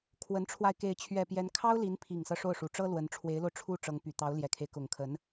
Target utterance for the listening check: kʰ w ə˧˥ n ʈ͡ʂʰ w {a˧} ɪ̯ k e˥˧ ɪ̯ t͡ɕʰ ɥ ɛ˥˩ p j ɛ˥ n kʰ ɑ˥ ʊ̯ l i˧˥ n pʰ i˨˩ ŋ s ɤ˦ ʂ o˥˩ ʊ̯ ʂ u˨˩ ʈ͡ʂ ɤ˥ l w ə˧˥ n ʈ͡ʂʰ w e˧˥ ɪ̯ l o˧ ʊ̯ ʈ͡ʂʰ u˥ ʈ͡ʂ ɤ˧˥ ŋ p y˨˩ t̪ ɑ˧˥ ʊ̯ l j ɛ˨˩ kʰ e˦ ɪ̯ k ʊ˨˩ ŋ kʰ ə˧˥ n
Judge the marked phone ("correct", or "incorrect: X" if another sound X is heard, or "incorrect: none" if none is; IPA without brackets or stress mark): correct